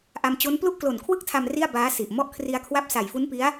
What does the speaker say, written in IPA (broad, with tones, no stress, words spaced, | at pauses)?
ʔa˧mt͡ɕo˦˥n plu˥˩ʔklo˨˩nkʰwɯ˥˩k̚tʰa˧m ri˥˩a̯ baː˦˥si˨˩ʔ mɔ˦˥ʔkʰri˧a̯kʰwa˦˥p̚ sa˨˩jfu˦˥npi˦˥a̯